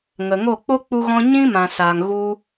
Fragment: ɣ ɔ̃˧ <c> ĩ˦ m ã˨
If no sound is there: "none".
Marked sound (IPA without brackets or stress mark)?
ɲ